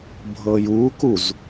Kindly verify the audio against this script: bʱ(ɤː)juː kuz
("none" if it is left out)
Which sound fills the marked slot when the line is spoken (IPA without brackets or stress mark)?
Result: ɤː